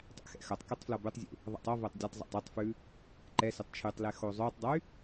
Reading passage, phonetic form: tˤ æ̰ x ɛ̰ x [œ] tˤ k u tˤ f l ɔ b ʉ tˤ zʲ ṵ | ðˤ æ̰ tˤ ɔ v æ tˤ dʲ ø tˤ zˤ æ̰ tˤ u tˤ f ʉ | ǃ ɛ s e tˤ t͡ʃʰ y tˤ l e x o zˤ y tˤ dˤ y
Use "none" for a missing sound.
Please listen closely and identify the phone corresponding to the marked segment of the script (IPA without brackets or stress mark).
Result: œ